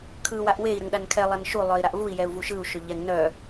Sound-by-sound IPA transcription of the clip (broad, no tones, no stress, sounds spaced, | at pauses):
kʰ ɯ w a ʔ w e i̯ ɾ ə ŋ ɗ a n kʰ ɛ lˠ a n ʃ u lˠ œ i̯ ɾ a ʔ v u i̯ j ɛ u̯ v u ʃ ɯ u̯ ʃ ʏ ʎ ɛ ŋ n œ